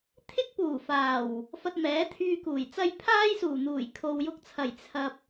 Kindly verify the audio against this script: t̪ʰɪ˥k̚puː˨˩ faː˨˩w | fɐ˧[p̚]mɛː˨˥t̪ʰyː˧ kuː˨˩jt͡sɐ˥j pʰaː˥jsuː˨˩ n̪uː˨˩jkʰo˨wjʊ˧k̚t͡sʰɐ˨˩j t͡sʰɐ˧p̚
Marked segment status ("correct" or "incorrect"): incorrect